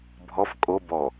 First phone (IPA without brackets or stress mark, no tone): bʱ